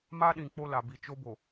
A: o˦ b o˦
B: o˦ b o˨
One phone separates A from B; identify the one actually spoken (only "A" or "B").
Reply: B